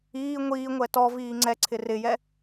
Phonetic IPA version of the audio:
iː ŋʷ iː ŋʷ ɛ t ɔ v iː ŋ͡ǀ ɛ ǀʰ ɪ r ɪ j ɛ

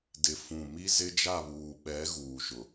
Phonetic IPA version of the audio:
d ɪ˨ f ũ˨ m i˦ z ɪ˦ d͡ʒ a˦˨ β uː˨ ɓ ɛ˨˦ ɣ uː˨ ʃ ʊ˨

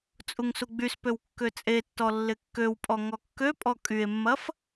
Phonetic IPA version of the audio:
t͡sʼ u ŋ s u ɡ͡b y s p ø w kː ø t͡sʼ e tː ɔ lː ɪ kː ø w pʼ ɔ ŋ ɔ kː ø pʼ ɔ kʼ y e̯ mː ɐ f

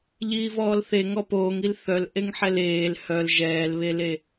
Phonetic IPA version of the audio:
ʎ iː v ɔː l θ e ŋ ɔ p oː ŋ i l θ œ l ʔ e ŋ ħ ɛ l eː l h œ l ʒ ɛː l β e l e

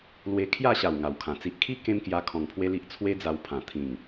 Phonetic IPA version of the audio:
l w e˧ kʰ j a˥˧ ɕ a˨˩ w ŋ a˨˩ w kʰ ã˨˩ t͡s i˨ ʔ kʰ i˦ k ẽ˦ m k j a˧ kʰ ɔ̃˨˩ ŋ pʰ w e˦ l i˦ ʔ t͡sʰ w e˦ d͡z a˧ w pʰ ã˨˩ t̪ʰ ĩ˨˩ ŋ

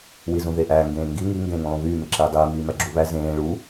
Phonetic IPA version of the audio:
w i z ũ ð e ʔ æː ŋ ɡ ẽː ŋ ɡ i ŋ i ŋ ɡ ẽː ŋ ũ lˠ ũ β yː m e ǁ iː dˤ iː m iː m æ ɡ͡ǁ u β æ z ẽː ɭ u

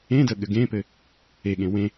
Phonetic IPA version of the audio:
ẽ d ə ɠ ɘ ɡ ẽ p ɘ | e ɠ ẽ w ẽ

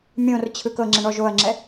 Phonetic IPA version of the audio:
mʲ õ r t͡ɕʰ ɯ k ɤ ŋ͡ǁ ɛ̃ ɳ ɔ ʒ o ɐ̯ ŋ͡ǁ ɛ

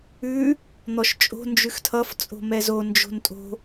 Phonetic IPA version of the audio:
ʉ | n̪ ɔ ʃ t͡ʃʼ o̤ n d͡ʒ ʉ x tʰ ʌ f t͡sʼ o̤ m ɛ z o n d͡ʒ o̤ n tʼ o̤

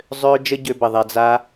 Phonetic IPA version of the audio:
zˤ øː˦ d͡ʒ ə˦ ɟ ø˧ b ə˨ ðˤ ɛ˧ d͡z a˧

